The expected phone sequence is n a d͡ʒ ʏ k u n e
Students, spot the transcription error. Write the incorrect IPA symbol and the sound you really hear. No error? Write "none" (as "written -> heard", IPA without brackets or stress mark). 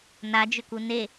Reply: none